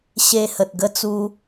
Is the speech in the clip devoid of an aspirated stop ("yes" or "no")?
yes